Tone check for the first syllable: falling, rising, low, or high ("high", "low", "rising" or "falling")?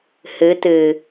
rising